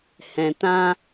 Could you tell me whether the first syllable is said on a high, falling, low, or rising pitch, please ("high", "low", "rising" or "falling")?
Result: low